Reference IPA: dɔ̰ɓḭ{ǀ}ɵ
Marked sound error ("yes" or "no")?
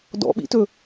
yes